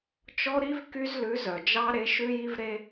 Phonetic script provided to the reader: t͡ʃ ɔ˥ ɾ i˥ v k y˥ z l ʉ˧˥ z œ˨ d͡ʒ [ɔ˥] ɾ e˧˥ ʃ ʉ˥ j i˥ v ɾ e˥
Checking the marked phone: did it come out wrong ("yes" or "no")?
yes